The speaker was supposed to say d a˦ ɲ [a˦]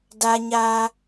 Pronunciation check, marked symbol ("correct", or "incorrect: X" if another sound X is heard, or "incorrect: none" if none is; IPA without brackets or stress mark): correct